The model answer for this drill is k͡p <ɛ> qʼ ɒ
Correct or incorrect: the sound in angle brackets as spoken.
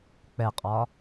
correct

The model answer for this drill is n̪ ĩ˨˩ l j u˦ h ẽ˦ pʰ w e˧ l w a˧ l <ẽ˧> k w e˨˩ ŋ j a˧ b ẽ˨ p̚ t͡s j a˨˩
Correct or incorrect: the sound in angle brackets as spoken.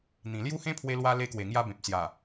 incorrect: e˧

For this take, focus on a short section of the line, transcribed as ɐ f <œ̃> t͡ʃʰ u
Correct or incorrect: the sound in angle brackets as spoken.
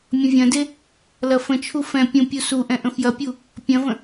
incorrect: ə̃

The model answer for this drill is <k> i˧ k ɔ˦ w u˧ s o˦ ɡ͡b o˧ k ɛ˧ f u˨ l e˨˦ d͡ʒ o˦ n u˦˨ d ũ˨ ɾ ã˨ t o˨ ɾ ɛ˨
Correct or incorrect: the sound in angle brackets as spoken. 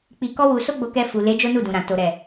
incorrect: k͡p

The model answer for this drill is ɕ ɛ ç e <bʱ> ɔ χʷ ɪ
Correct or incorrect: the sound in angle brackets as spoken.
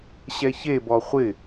incorrect: b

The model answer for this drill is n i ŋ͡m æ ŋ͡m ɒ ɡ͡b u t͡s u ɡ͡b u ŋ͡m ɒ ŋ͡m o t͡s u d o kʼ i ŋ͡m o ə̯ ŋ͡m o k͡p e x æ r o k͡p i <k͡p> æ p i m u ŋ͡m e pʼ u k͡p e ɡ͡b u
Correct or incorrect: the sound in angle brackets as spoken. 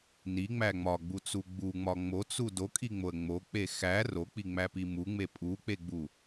incorrect: ŋ͡m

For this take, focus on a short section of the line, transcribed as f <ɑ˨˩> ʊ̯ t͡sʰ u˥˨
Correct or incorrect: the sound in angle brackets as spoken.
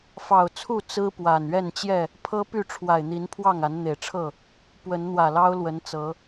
correct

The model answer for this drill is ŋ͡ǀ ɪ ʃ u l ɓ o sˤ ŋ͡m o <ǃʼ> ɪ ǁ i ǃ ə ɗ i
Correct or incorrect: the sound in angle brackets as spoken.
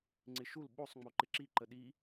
incorrect: ǃ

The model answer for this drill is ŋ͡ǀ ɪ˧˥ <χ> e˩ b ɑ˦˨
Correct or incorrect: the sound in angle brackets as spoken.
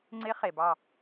correct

